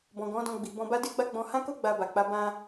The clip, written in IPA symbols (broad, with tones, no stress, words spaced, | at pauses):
bɔ̃˨ɡɔ̃˨˦ dɔ̃˧ɡ͡bi˨bɔ̃˧ba˦ de˦ ɡ͡ba˦ɡ͡bɔ̃˧ hã˦ko˦ ɡ͡ba˧ba˨k͡pa˨˦ bã˧